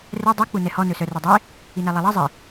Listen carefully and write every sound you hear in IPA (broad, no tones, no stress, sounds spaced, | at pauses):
r ɛ dˤ i k͡p u n ɛ h ɔ n ɵ s œ r œ dˤ e | i n æ lˠ ɛ lˠ ɑ zˤ i